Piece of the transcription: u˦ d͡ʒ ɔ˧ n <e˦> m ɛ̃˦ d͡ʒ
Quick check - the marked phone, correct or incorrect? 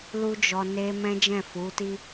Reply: correct